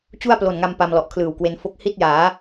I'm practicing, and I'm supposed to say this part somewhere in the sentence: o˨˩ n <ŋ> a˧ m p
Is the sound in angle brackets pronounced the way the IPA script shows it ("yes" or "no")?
yes